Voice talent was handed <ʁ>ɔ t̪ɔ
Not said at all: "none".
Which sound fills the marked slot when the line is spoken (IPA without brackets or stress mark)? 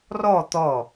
r